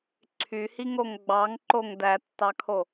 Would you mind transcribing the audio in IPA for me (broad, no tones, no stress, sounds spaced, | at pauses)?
ǀʰ y h i ŋ o ŋ ɡ͡b ɑ ŋ ǃ o ŋ d æ tː ɑ kʰ o